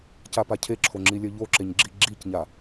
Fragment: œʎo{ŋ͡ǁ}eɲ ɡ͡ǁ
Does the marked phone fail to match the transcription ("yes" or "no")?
yes